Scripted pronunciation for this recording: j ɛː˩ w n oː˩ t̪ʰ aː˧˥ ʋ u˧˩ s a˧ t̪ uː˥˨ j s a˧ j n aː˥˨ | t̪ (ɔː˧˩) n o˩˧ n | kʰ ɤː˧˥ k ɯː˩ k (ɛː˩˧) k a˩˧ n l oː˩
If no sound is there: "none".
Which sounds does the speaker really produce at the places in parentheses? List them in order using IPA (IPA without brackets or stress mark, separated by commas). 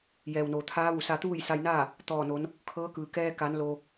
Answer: ɔː˧˩, ɛː˧